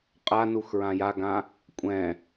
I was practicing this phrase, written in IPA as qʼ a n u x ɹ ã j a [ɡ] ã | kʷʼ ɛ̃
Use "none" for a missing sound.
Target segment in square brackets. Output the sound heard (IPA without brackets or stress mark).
ɡ